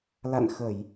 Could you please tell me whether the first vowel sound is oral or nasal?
oral